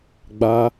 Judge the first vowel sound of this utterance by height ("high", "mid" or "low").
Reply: low